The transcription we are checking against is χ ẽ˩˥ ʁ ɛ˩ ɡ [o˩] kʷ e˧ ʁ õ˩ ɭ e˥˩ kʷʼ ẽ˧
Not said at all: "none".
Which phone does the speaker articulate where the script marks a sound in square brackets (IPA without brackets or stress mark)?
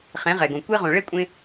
õ˩